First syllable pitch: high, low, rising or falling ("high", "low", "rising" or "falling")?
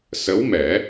rising